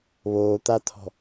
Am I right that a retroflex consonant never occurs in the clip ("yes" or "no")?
yes